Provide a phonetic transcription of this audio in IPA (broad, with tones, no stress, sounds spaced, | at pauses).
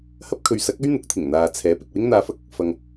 h ɐ˥ p̚ kʰ ɵ˨ ɥ s ɐ˨˥ k̚ ɵ˥ ɥ n̪ ʊ˨˥ k̚ t̪ʰ ɪ˨˩ ŋ n̪ aː˨ t͡sʰ ɛː˨˥ p ɪ˨ k̚ w ɪ˥ ŋ n̪ aː˧ f ɐ˥ k̚ | f ɐ˨ ŋ